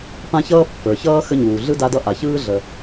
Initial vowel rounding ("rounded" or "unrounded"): unrounded